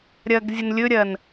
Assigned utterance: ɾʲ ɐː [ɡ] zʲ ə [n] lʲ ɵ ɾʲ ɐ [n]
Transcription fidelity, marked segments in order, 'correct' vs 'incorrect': correct, correct, correct

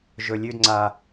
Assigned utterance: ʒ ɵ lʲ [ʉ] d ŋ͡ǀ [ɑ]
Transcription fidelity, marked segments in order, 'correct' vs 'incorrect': correct, incorrect

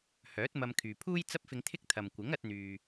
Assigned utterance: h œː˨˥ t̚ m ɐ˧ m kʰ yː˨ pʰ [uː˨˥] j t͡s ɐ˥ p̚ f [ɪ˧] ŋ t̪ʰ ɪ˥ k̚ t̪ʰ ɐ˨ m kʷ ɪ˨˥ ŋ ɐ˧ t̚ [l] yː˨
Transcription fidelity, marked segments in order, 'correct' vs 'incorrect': incorrect, correct, incorrect

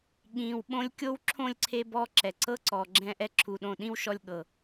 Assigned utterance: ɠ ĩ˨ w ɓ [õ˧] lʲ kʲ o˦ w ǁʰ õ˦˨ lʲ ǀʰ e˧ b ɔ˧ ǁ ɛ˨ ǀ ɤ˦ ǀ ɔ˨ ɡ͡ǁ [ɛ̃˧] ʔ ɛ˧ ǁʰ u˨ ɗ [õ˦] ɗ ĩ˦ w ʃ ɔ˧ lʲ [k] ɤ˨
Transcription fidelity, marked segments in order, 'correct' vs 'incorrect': correct, correct, incorrect, incorrect

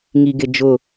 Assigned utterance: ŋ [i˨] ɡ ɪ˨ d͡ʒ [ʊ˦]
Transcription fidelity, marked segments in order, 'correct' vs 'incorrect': correct, incorrect

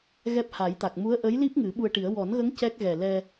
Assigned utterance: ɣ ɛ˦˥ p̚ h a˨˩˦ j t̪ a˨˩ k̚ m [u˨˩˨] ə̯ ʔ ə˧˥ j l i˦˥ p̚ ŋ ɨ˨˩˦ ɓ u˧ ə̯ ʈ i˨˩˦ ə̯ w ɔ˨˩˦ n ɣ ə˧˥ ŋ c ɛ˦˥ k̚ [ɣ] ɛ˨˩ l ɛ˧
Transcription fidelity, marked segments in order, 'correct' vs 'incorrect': incorrect, correct

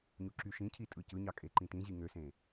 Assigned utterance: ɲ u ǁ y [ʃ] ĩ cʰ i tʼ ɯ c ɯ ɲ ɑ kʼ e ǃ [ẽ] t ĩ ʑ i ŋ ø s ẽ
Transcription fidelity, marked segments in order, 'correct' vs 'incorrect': correct, incorrect

